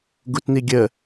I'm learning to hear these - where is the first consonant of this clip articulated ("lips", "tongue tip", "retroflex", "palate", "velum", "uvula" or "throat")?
velum